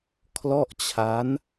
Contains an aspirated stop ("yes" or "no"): yes